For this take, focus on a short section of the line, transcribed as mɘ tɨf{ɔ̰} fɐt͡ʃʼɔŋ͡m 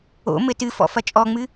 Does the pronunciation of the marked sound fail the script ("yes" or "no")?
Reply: no